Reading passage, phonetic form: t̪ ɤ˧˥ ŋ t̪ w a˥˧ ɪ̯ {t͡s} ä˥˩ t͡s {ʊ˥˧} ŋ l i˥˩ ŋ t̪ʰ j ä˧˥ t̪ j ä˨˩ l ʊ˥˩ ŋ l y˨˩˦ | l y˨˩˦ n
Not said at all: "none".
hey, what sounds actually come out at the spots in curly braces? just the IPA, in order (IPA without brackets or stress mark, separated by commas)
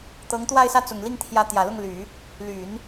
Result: s, ʊ˨˩